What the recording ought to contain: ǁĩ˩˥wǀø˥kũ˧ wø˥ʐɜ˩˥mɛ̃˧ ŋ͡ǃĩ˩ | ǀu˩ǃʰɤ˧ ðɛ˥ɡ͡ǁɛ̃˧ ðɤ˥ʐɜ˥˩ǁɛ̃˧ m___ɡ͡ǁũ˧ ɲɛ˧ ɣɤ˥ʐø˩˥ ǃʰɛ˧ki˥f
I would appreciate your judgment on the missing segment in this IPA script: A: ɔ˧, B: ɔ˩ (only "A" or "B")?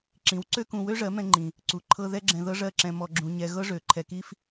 A